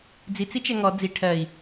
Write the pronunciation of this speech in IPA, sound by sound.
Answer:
d͡zit͡sit͡ʃɛ ŋɔ d͡zi ʈʰɜi̯

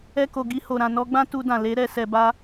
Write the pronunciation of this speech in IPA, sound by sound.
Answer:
ɛ˧ko˨ ɡi˧ho˨ ɾã˨ nɔ˧ɡ͡bã˦ tu˧dã˨ le˨˦ɾɛ˧ sɛ˨ba˧

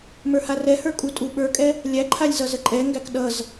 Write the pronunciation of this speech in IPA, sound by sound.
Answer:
mə˞harɛhə˞ kʼutʼuɓə˞kʼɛ | lʲæǃʰalʲ zʌzəǃʼɛŋɡæk ɗʌz

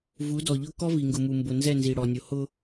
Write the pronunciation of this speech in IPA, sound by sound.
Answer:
vu˨˦dɔ˨ʎʊ˦ kɔ˦vi˨ŋɡʊ˨mu˨ mbʊ˨nzɛ˦˨nzi˨ ɽɔ˨nʲo˨ hʊ˦

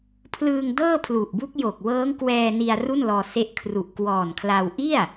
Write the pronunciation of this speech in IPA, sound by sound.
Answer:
pʰlɯː˧ŋdɤː˥˩pʰlu˨˩ʔbu˦˥k̚ jo˨˩k̚wɤː˦˥ŋkwɛː˧ni˧a̯ ru˥˩nlɔː˧ se˦˥ʔ kʰru˨˩ʔkwɔː˨˩nkʰla˧w ʔi˥˩a̯

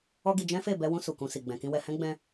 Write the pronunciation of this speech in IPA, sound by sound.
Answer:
ɔ˦ɡi˧ d͡ʒɛ̃˦fe˦˨ bɛ˧wũ˧ su˨kũ˧si˨ ɡ͡bɛ̃˨kĩ˧wɛ˧ hɛ̃˦ ɡ͡bɛ̃˦

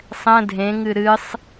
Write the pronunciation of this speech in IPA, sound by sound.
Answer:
sˤɛ̃ dʱẽŋɨ ɾɨsˤ

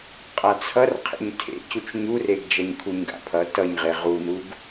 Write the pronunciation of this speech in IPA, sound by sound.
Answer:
qʼat͡sʰʌr qʰḛɲtʰḛ cut͡ʃɲureɡ d͡ʒʌɲkʰuɲɡa̰pʰʌ tʌɲʁe ʁunuɡ

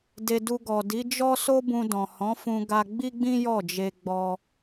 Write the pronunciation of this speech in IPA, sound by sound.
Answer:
de˧ du˧ɡɔ˨ di˨˦d͡ʒɔ˦ so˦bũ˧dɔ̃˨ hɔ̃˨˦fũ˧ ɡa˧ɡ͡bi˦ɡ͡bĩ˦ jɔ˦˨d͡ʒe˧ɡ͡bɔ˧

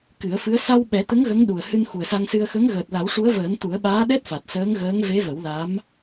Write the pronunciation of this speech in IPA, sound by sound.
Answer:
kɨ˨˩˦ə̯fɨ˧˥ə̯ sa˧w ɓɛ˨˩˦t̪ə˧˥ŋ ɣə˧˥ŋɗu˨˩ə̯hɨ˧n xu˨˩ə̯sa˧ŋsɨ˧ə̯ xə˧˥ŋ ɣəː˨˩t̚la˨˩˦wʂu˧˥ə̯vəː˨˩˦n t̪u˨˩˦ə̯ɓaː˧˥ɗɛ˦˥t̚ fa˨˩t̚səː˧˥ŋɣəː˧˥ŋ ve˧˥və˨˩˦w la˧˥m

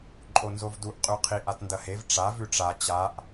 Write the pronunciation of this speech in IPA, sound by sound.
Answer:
ǃʼonzovduʔ qʼʉqʰiʔ atndɐhev ʈ͡ʂa vʉʈ͡ʂa t͡ɕaʔ

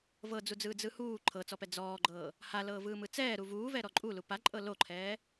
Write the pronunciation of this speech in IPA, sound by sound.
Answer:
vɤd͡zud͡zɯː d͡zɯhuː ǃʰɤt͡sɔpɛ d͡zɔːɡ͡ǃɤː | halɤːvɯːmɯ t͡sɛːɾu vuːvɛ ɾɔǃʼulu paǃʼɤ loǃʰɛː

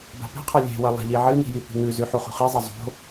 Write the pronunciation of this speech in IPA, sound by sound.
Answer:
ba̤pi̤qʰa lʲe̤wɐ lˠa̤ʎiʕɨni̤ jipi̤ŋʉzʉ ħuχṳχizˤɐ zˤo̤

